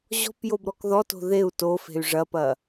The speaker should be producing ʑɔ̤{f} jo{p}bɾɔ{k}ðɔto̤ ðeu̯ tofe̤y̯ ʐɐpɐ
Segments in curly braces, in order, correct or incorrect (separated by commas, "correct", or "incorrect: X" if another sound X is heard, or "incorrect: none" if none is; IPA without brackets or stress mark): incorrect: p, incorrect: none, correct